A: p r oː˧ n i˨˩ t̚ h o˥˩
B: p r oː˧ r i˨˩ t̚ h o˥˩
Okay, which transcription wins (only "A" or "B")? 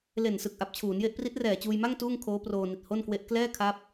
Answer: A